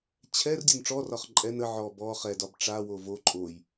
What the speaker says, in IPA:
t͡ɕʰɛr dʲonʈ͡ʂɔrɒχ ǃʼɛn ə ʕɔ bɔ χɛdɒb ʈ͡ʂawo vo ǃʼoj

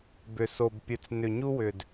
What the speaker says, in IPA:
bʏ˨so˨bpʲɨ˨t͡s nʏ˨ɲu˦wʏ˨d

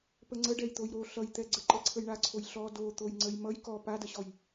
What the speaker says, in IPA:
pəŋ͡ǀə ɖɛjt̪ojɾo ɬʌjt̪ɛɡ͡ǀə ǃɛǀʰəjɳaǀʰoj ɬɔ do t̪ojŋ͡ǀəjmʌj kɔ padəɕɔj

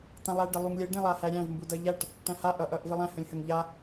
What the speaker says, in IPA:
tãlˠæɖə lˠuŋlʲə ɖẽlˠahæɾʲæ̃v mbudʌʎæʈ | ʈæ̃ha ʔʌʔʌʔ vəlˠæ̃ hə̃lʲhəŋ ʎa

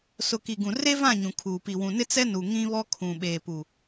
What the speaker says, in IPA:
sʊ˨ki˨ ɡũ˨re˦vã˦˨ ɲũ˨kʰuː˨ pi˨wũ˨nɪ˦ t͡sɛ˦nu˨ ŋĩ˦βɔ˦ kʰũ˨ɓeː˨pu˨

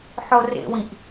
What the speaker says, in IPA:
ħorḛwĩʔ

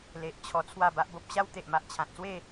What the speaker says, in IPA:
le˨ʔt͡ɕʰɔ˧ t͡sʰwa˥˧ba˦ʔbo˦p̚ ɕa˦w t̪e˨ʔma˨ʔ t͡ɕʰã˨t̚swe˥˧

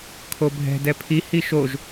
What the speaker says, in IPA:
kʰobʱɛ̤ dɛpʰi hiʃoʒ

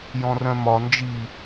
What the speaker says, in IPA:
jɔ̃rœ̃mɒ nd͡ʒi

